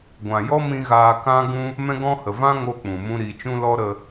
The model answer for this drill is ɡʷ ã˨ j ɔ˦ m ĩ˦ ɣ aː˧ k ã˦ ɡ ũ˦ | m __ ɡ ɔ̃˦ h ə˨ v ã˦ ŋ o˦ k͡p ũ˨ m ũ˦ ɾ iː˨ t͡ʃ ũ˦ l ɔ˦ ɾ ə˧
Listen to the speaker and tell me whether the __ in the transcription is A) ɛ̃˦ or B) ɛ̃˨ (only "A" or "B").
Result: A